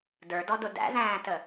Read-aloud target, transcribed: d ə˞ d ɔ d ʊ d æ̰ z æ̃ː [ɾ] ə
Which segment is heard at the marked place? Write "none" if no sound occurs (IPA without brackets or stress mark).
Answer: t